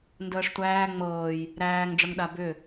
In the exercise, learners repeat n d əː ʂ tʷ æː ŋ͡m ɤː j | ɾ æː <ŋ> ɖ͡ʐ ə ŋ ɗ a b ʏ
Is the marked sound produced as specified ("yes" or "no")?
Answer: yes